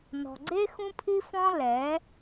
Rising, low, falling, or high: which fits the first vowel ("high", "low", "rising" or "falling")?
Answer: low